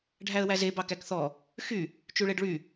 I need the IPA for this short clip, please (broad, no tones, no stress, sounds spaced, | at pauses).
ɖʱ æ ə̯ w æ z e b ɑ k æ k θ ɔ | x y | t͡ʃ y ɭ e ɖ ɭ y